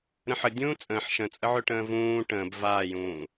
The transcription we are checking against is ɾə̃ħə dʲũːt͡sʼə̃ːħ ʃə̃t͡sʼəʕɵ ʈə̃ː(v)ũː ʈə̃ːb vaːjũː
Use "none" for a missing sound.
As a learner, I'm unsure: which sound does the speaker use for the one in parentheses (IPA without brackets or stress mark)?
v